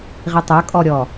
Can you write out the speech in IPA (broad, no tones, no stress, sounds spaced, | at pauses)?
ʁ i tˤ ə˞ kʼ ɔ ɾʲ ɔ